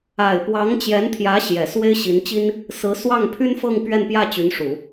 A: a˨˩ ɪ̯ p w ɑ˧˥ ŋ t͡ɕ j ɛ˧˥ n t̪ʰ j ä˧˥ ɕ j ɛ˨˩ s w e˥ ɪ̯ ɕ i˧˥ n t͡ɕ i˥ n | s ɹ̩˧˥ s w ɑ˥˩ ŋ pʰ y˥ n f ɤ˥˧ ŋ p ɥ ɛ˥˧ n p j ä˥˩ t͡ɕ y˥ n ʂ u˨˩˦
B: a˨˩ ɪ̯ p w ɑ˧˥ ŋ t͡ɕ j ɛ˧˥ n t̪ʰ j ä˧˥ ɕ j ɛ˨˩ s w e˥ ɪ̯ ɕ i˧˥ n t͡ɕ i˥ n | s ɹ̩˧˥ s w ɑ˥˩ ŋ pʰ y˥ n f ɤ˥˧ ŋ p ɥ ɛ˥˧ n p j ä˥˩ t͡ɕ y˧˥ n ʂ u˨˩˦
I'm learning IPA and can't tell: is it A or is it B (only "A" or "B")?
B